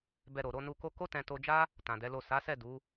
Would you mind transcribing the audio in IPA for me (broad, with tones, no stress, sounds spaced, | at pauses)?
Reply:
b ɛ˧ ɾ o˨ ɾ o˧ n u˧ k o˦ k o˦ t ɛ̃˧ t o˧ d͡ʒ a˦ | t ã˨ d ɛ˨˦ l o˦˨ s a˨˦ s ɛ˦˨ d u˨˦